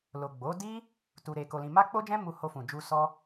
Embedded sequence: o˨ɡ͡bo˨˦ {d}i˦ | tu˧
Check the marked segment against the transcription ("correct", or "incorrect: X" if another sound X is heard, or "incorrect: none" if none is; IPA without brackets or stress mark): correct